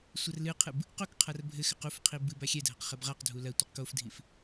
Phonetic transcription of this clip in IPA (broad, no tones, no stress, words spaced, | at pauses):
sʷɐrlɨqʰɨb | qokqʰar bʱɘxɘq ufqʰi bɨba xʲɛdʱɐq χɛbʁaqdʱu lɐtʷɐq kofdʱif